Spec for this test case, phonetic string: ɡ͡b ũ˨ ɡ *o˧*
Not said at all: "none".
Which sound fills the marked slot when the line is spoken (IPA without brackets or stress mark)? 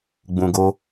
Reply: o˧